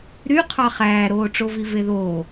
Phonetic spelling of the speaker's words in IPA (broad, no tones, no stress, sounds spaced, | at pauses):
ɾ y qʰ ɑ χ æː ɾ oː ʈ͡ʂ o v i v e ð oː